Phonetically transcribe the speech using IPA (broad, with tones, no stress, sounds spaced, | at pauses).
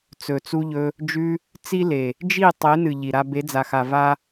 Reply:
t͡s ɵ˨ t͡s u˧ ʎ ɵ˧ | d͡ʒ ʉ˧ | t͡s i˦ l e˨ | d͡ʒ i˦˨ tˤ e˨˦ n ɨ˨ ʎ i˨ ɾ a˧ b e˨˦ d͡z a˨ x a˨ v a˦